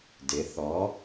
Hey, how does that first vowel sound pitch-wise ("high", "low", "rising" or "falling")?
rising